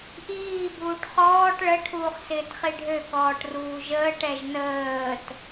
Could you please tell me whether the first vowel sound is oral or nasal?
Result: oral